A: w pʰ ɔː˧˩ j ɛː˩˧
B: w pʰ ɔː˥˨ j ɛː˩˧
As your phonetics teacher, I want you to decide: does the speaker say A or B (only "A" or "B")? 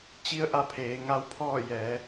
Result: B